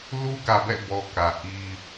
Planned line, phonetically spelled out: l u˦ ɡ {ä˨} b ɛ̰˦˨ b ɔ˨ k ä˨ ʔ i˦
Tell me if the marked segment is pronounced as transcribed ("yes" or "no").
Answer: yes